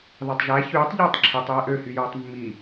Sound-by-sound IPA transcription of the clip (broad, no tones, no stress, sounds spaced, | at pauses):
ð ɑ tˤ ʒ æ ç yː tˤ ʎ ɯː tˤ ǁʰ i tˤ j e ʔ ø h y j oː tˤ mː i